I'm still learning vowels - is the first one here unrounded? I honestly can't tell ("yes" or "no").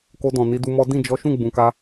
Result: no